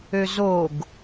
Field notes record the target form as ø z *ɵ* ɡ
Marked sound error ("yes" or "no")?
yes